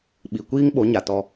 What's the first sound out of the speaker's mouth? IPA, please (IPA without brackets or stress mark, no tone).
ɓ